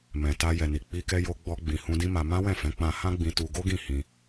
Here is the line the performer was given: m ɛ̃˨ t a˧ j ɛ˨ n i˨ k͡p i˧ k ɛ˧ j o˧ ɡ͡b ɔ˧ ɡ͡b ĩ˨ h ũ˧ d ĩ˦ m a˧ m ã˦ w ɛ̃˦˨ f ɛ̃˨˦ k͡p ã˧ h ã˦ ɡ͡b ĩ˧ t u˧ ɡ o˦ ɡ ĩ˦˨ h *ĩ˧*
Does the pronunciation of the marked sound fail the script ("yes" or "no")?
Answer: no